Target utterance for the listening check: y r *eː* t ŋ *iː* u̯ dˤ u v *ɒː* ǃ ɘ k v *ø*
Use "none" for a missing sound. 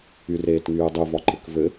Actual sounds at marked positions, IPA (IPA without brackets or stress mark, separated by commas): eː, yː, ɒ, ɘ